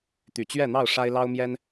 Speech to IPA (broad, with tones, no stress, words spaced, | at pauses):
t̪y˨˩t͡ɕɥɛ˥˨n̪ɑ˥˨ʊ̯ ʂa˦ɪ̯lɑ˦ʊ̯mjɛ˦n